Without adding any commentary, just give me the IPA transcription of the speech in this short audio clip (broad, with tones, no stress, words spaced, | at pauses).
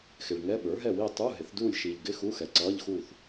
xɪ˨ɭŋɛ˧˥˧ ɓə˞˩˥ɦɛ˥˨wi˥˨ tˤu˧˥˧ ɦɪ˩˥θduː˥˨lʲ ʃiː˨ʎɡɪ˧˥˧ xu˧˥˧xɛ˨ ǀʌː˧˥˧ʎxuː˥˨θ